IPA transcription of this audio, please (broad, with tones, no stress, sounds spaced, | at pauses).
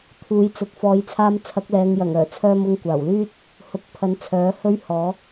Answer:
t̪ʰ uː˨˥ j t͡s ʊ˨ k̚ f ɔː˨˧ j t͡sʰ aː˧ m t͡sʰ ɐ˨˥ k̚ l ɛː˨˧ ŋ j ɐ˨˩ ŋ œː˨˩ t͡sʰ œː˧ m ʊ˧ ŋ kʷ aː˨˩ w l yː˥ t̚ | h ʊ˨˥ k̚ pʰ ɐ˨˥ n t͡sʰ œː˨˥ h ɵ˥ ɥ h ɔː˨˥